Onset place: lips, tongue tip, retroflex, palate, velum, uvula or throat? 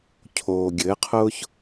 palate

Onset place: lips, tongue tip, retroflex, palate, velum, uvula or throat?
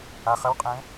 uvula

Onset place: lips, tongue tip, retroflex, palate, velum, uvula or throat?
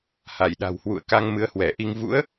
throat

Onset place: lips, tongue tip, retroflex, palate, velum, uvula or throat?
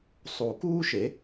tongue tip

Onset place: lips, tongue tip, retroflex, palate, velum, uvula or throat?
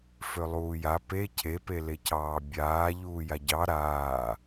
lips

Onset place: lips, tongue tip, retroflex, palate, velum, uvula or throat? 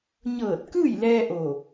palate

